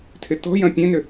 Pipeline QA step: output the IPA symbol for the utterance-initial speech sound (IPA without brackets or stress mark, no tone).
tʰ